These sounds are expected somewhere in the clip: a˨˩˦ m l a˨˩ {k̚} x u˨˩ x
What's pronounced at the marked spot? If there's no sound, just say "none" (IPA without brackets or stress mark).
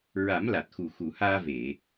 t̚